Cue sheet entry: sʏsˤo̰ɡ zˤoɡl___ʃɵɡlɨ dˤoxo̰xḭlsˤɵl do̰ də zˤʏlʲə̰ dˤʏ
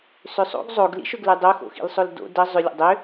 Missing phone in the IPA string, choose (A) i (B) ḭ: B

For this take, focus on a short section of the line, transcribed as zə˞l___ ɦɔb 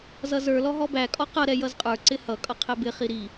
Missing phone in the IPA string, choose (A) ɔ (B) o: A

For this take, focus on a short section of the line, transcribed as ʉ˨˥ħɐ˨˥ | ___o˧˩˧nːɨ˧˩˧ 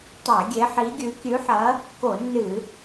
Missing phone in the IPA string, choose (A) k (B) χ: A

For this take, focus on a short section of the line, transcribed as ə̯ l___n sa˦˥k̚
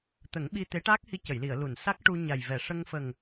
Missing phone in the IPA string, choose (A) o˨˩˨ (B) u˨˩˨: B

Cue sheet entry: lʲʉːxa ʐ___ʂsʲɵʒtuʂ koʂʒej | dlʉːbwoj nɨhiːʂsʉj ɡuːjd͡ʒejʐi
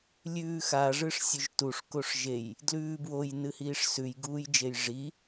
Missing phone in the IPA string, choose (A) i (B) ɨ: B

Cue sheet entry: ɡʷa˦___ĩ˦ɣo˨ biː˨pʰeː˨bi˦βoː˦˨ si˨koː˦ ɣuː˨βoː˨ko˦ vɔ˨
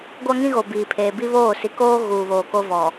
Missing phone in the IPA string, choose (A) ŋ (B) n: A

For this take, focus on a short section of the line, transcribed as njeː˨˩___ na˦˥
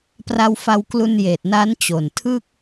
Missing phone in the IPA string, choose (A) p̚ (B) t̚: B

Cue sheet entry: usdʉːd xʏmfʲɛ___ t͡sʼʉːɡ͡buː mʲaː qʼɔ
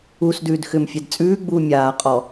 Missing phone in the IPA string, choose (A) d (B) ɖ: A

